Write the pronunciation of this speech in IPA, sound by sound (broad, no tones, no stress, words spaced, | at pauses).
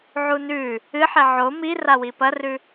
ʕunʉ | ɨħe ʕo mi rawipɐrʉ